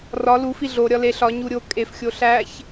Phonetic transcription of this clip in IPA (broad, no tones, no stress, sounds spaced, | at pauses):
r ɒ l u f i ɮ o ɾʲ ɒ l e ɬ ɒ ɲ u ɾʲ o kʼ e f xʲ o ɬ æ ç